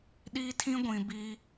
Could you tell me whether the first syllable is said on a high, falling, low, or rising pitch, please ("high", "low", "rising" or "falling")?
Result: high